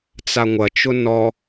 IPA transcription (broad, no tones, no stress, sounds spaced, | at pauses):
t͡s a ŋʷ ɐ t͡ʃ ʊ n ɔ